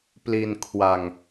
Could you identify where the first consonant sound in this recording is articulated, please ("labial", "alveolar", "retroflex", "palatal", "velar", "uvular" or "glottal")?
labial